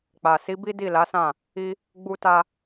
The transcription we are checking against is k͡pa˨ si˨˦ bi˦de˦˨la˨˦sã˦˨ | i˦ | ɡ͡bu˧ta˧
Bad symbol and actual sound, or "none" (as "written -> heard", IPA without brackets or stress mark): e˦˨ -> i˦˨